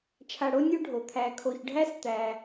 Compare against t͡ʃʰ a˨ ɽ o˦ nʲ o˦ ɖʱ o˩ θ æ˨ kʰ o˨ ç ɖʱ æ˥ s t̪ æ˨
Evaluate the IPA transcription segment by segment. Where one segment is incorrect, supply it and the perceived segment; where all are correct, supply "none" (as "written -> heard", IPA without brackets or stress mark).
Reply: θ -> t̪ʰ